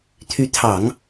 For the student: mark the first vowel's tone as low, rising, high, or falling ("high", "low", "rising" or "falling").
rising